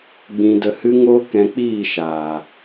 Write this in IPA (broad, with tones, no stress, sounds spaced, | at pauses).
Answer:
ɡ͡b ĩ˧ d ə˧ h ɨ˦ ŋ o˦ k ɛ̃˧ k͡p iː˦˨ ʃ aː˨